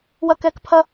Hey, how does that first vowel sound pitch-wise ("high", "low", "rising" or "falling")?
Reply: low